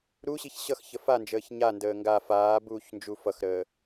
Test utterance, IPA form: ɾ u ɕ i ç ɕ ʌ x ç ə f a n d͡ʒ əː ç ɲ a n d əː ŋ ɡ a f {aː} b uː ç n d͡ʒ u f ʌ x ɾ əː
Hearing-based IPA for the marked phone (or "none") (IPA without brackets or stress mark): aː